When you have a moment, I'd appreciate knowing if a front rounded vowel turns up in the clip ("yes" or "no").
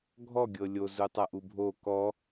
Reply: no